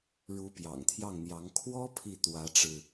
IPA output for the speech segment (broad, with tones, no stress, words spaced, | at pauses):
ɻu˧˥pjɑ̰˨˩ŋt̪ʰjɑ˥˩ŋn̪jɑ˧˥ŋ kʰwɔ˥ pʰi˥˩t̪wä˧˥ʈ͡ʂɻ̩˧